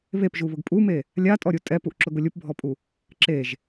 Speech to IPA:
β e p ʒ u β ʊ ɡ pʼ u m e | lʲ a tʼ ɔ ɾʲ u tʼ ɛ p u ʔ ǁ ʊ ɡ ʊ lʲ u p bʱ ɔ pʼ u | ǁ e ʒ

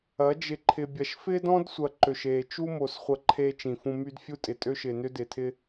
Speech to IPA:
ɐ˨˦ d͡ʒ ɪ˨ ǃʰ ɪ˨ bʲ ɐ˨ ʃ f ɪː˦ d ɔ̃˦ d sʷ ɐ˨ ǃ ø˨ ʃ eː˨ t͡ʃ u˦ m o˨ s χʷ ɐ˦˨ ǃʰ eː˦ t͡ʃ ĩ˨ f ũ˦ m y˦ d fʲ u˦ tʼ ɪ˨ tʼ ø˦ ʃ ɪː˨ n ʏ˦ d ɪː˨ tʰ ɪ˦

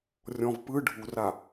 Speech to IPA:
rʲ ɔ̃ v p ɯ ɖʱ u r a

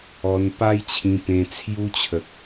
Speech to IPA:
ɔ˧ n p a˦ j t͡ɕʰ ĩ˧ p ẽ˧ t͡sʰ j u˧ t͡ɕʰ ə˨ k̚

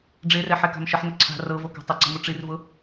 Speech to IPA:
ɖ͡ʐ e r ɛ ħ ɛ k a̤ m ʃ ə ħ n ʊ ǀʰ a̤ r ɤ v o k a̤ tˤ ʊ ǀ ə̤ m ʊ ʈ͡ʂ i r v ʊ

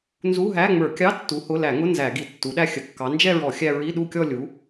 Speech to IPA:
n z u˧˥˧ ɦ æ˧˥˧ ŋ͡m ə˞˧˩˧ kʲ ɑ˧˥˧ tː u˨˦ h ʊ˧˥˧ l æ˧˩˧ ŋ ʊ˧˥˧ n z æ˧˩˧ ɡ i˧˩˧ tː u˨˦ ɗ æ˥˧ xʲ ə˧˩˧ kː ɑ˨˦ n d͡ʒ ɛ˥˧ ɹ ɔ˧˩˧ xʲ æ˥˧ ɹ i˧˥˧ ɗ u˥˧ kʲ ɔ˥˧ lʲ u˨˦

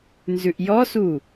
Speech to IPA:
n z ʉ ʔ j ɔ s u

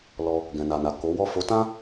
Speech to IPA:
l ɔ˧ | ɡ ɛ̃˨ n a˨ n a˨ k o˨˦ w ɔ˦˨ f o˨˦ t ã˦

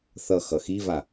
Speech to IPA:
θ ʌ x ʌ x i v a

